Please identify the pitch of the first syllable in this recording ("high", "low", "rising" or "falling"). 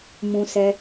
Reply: high